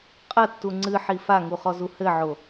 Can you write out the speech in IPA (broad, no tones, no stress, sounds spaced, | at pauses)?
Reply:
qʼ ɐ tː u ŋ͡ǀ ɨ ħ i f a ŋ u χ ɔ z u h ɘ ʕ o